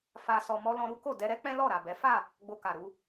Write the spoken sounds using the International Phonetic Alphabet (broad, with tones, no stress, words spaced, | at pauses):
fa˨sɔ˨mɔ˧ lɔ̃˧ɾu˦ko˦˨ dɛ˧ɾɛ˦ k͡pɛ̃˦lɔ˦˨ ɾa˨bɛ˨˦ fa˦˨ | ɡ͡bo˧ka˨ɾu˧